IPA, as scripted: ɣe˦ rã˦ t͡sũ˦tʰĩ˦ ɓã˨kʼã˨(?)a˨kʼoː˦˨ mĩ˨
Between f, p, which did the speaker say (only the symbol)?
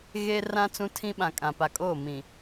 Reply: p